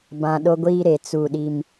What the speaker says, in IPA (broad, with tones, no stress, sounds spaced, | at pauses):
b ã˨ ɗ o˦ ɡʷ iː˦ ɾ e˨ t͡s u˦˨ ɗ i˦ m